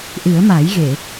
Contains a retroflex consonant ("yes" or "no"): no